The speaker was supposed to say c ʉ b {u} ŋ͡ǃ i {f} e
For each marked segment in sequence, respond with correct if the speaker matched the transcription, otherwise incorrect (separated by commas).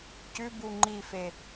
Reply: correct, correct